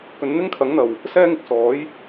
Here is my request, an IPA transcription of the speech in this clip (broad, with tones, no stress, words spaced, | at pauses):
kɵ˨˧n n̪ɪ˥ŋkʰɐ˨˥ŋn̪ɐ˨˩w | sɛː˥ŋɪ˨˥k̚sɔː˨˥j